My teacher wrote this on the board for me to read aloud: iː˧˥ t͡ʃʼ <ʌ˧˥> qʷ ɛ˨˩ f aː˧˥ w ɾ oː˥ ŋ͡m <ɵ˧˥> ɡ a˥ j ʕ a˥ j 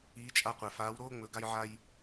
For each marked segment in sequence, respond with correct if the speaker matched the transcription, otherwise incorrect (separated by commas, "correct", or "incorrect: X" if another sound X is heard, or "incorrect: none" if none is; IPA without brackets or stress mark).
incorrect: a˧˥, correct